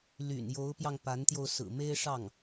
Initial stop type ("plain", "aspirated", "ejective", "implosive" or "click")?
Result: plain